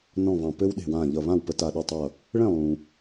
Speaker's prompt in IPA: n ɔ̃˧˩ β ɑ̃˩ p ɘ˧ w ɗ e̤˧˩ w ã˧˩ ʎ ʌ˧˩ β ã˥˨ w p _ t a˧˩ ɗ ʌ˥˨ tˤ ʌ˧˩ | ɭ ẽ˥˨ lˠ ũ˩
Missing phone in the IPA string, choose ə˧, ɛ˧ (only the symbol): ə˧